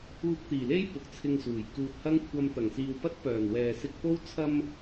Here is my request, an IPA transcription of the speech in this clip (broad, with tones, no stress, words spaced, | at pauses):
uː˧k̚t̪iː˨˩le˥j pʊ˨k̚t͡sʰɪ˧ŋsuː˨˩j kuː˨t̚hɐ˥ŋ kʷʰɐ˧m t̪ɐ˨˩ŋsiː˨w pɐ˥t̚ pœː˨˩n wɛː˨sɪ˧k̚po˥w t͡sʰɐ˧m